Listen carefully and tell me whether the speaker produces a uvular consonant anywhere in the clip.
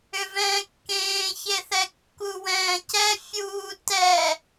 no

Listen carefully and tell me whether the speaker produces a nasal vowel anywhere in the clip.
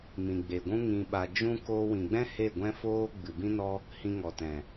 yes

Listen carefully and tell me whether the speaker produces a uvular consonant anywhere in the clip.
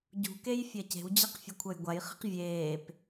yes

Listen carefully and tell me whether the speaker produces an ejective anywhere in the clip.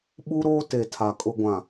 yes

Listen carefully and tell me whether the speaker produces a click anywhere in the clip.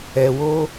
no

